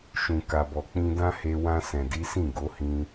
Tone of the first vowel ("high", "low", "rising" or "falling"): low